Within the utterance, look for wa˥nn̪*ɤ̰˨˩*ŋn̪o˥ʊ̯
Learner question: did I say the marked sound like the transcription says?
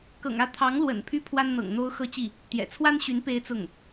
yes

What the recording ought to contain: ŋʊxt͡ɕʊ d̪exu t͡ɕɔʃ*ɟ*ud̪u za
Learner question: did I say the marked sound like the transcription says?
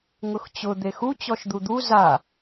no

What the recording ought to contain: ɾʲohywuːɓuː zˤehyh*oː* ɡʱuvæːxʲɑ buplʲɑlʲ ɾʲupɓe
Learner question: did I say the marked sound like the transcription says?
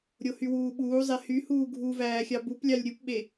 no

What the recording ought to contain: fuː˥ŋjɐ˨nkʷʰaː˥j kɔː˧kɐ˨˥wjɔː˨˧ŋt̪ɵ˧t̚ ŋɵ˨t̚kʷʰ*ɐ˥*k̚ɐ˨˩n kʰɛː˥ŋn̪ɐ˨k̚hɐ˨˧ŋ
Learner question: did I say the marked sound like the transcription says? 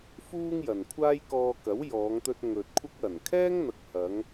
yes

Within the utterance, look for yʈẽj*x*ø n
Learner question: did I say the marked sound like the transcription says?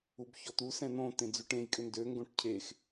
no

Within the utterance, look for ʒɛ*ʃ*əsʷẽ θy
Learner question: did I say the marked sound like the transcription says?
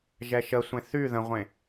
yes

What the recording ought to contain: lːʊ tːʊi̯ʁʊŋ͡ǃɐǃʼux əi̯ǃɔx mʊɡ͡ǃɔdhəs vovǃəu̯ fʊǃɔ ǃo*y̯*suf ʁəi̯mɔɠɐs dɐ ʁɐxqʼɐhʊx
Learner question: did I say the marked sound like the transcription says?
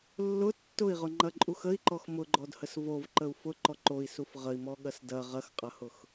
no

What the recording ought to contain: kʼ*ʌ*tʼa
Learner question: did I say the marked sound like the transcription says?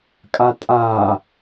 no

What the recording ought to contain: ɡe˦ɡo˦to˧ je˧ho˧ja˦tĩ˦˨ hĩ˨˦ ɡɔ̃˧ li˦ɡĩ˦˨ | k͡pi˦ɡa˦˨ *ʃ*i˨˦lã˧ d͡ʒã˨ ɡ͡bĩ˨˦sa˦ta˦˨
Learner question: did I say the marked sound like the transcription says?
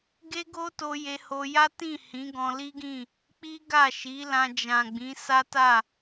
yes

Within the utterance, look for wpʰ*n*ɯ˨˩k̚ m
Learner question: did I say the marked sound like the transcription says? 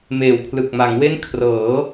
no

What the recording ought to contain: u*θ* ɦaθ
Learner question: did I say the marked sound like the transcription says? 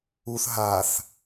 yes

